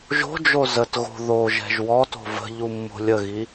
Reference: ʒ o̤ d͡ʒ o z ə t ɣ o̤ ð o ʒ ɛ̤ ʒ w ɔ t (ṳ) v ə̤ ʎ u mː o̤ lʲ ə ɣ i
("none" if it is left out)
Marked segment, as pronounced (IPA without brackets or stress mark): o̤